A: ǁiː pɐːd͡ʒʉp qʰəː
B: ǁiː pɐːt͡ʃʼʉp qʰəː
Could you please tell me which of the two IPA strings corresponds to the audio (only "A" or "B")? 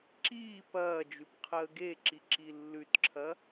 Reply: A